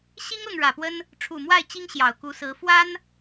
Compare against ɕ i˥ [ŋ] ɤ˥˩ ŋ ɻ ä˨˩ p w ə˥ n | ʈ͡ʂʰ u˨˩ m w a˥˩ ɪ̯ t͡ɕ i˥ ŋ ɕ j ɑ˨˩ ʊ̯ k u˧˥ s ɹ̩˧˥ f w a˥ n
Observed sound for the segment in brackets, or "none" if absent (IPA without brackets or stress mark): ŋ